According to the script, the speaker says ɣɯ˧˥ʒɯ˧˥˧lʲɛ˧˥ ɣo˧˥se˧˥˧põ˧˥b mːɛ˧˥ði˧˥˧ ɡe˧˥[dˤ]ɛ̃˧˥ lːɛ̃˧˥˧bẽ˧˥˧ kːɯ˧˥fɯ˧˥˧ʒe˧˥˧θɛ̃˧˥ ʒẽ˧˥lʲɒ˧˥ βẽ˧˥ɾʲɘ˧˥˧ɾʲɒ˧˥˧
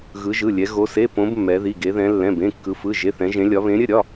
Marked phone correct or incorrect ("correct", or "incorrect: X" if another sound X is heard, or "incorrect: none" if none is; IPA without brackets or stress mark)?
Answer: incorrect: ð